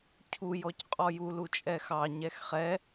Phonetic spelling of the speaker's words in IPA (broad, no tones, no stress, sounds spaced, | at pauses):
cʰ u j ɔ c qʼ ɔ j u l u t͡ʃʼ ɛ x ɑ ɲ ɛ x χ ɛ